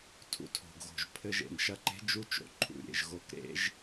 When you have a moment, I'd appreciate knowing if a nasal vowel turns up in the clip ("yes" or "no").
no